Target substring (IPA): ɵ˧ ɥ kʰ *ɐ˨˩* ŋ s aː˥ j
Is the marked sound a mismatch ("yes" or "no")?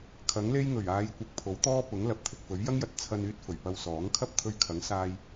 yes